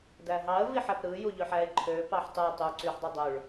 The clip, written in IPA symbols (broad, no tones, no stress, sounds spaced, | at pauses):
d æ ɦ ɑ ə̯ v i ħ æ p ɾ ɯ j u ʎ ø ħ æ ɪ̯ ǃʰ ø p ɑ ħ tˤ ɯ tˤ u ǀ y ħ dˤ y dˤ o ɭ